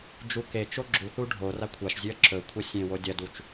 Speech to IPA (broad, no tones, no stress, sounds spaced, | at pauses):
d͡ʒ u k e t͡ʃ o ɡ͡ǁ u θ u ɖʱ o r a kʷʰ a ʃ zʲ ʉ ɐ̯ ǁ ɵ kʷʰ ɐ sʲ ẽ w o dʲ ɐ d u t͡ʃ